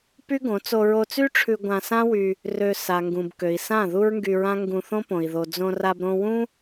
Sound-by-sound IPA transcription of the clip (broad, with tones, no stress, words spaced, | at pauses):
py˦ɡõ˨˦ t͡so˧ɹo˧t͡sy˦ʈ͡ʂʰʉ˧ ɡʷã˧sã˦wy˧ | rø˧ sa˨ŋɡũ˨b kø˨i̯sã˦˨ ðu˦ɹŋɡy˧ɹã˦ ŋɡũ˧θõ˦põ˨i̯ ðo˨d͡zõ˧ra˧b ɾõ˧wũ˦